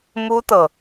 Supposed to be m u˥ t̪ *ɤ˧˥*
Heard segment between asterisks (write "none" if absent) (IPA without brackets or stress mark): ɤ˨